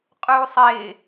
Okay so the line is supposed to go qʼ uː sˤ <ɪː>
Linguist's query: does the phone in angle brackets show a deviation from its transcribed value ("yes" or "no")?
no